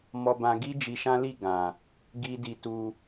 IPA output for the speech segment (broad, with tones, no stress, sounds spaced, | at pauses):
m ɔ˧ b ã˧ ɡ i˦ d͡ʒ i˧ ʃ ã˦ l i˦˨ ɡ ã˨ | ɡ i˦ d i˧ t u˧